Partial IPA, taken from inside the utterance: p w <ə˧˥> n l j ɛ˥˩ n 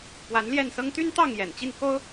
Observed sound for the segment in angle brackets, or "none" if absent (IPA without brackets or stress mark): a˧˥